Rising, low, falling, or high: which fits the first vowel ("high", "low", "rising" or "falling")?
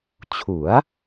rising